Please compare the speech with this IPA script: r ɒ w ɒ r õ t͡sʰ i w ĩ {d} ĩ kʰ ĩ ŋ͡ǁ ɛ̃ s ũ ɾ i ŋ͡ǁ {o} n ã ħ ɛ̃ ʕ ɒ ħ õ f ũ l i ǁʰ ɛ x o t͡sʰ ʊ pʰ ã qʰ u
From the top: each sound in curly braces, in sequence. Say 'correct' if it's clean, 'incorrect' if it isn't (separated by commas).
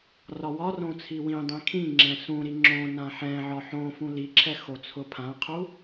incorrect, incorrect